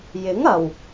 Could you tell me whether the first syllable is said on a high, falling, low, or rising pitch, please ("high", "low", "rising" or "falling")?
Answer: rising